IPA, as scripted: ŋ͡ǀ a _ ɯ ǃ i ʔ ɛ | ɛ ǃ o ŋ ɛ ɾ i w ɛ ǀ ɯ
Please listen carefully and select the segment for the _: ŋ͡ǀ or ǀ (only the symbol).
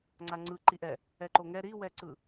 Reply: ŋ͡ǀ